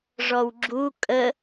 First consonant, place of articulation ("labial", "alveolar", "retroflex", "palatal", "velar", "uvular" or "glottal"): retroflex